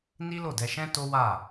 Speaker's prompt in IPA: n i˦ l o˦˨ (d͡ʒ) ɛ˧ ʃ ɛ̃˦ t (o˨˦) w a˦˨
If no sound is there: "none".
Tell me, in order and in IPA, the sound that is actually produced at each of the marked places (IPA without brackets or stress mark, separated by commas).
d, o˦